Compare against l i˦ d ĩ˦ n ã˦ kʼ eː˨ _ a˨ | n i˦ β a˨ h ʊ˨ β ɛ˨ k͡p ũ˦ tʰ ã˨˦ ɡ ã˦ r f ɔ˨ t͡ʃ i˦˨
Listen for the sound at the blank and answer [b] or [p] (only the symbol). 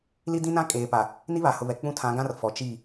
p